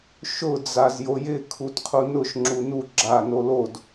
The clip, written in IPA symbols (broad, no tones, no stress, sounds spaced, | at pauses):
ʃ ʊ d͡z a z j o j ɪ kʰ u t qʰ u n ʊ ʃ ŋ͡ǁ u n u ɡ͡ǁ a n o l o d